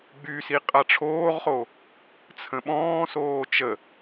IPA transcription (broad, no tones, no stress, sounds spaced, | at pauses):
ɡ͡b y s i qʼ a ʈ͡ʂʰ oː ʁ χ o | t͡sʰ ə̃ ɓ ɔ̃ː s oː t͡ʃ ə